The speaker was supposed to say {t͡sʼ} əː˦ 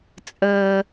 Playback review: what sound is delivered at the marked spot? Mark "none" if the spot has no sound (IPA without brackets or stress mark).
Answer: t͡sʼ